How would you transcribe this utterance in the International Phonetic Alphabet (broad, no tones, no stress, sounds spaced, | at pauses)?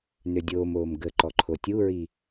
n ø dʲ oː m oː m ɡ ə ǃ ɔ ǃʰ o tʲ u ɹ i